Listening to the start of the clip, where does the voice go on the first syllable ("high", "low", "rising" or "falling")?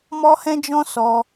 high